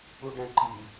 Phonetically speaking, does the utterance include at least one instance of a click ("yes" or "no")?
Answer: yes